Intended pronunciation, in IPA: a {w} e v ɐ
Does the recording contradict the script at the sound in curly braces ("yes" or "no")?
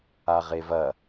yes